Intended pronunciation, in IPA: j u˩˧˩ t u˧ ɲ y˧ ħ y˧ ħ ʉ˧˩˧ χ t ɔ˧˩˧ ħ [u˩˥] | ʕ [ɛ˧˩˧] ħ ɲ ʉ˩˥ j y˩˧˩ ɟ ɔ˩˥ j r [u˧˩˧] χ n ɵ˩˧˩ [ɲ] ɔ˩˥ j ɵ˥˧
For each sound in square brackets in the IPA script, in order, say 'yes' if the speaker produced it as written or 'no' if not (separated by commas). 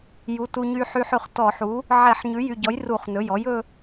yes, yes, yes, no